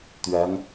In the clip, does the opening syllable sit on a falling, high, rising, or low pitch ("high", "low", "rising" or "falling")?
rising